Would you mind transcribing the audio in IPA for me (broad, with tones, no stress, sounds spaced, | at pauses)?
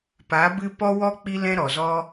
p a˨˦ b ɨ˧ p ɔ˦ w ɔ˦ k͡p i˧ l ɛ̃˧ ɾ ɔ˨ z ɔ˦